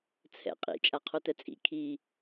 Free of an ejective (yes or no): no